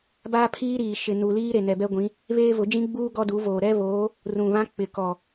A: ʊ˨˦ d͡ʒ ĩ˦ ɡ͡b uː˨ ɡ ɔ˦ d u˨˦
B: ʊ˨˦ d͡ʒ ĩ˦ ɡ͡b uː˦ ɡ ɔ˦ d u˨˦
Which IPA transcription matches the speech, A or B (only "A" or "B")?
B